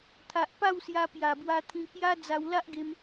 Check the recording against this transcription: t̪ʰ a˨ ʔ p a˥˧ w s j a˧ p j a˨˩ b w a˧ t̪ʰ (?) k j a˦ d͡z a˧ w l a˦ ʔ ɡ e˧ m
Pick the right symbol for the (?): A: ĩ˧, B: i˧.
A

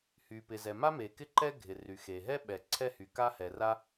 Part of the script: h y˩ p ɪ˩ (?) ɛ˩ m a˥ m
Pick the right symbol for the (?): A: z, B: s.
A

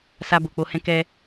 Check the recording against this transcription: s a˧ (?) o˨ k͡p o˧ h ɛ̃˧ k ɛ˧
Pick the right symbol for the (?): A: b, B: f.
A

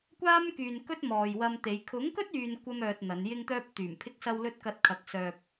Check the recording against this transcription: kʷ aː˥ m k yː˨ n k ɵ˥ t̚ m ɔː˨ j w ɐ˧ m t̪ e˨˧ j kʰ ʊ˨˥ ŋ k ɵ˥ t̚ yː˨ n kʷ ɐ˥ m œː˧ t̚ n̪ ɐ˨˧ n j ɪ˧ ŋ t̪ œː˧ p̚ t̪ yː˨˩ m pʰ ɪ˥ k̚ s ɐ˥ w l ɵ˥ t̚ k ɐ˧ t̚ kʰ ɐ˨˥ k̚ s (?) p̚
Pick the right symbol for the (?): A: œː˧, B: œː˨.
A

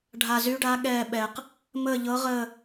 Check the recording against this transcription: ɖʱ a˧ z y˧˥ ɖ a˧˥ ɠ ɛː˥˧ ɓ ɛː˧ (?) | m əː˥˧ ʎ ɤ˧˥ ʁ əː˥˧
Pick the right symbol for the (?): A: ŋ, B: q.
B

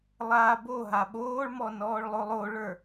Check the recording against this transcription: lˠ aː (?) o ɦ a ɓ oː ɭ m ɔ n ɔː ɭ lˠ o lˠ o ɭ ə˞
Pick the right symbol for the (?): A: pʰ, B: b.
B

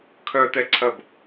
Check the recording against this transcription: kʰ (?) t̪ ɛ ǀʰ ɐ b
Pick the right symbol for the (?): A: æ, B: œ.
B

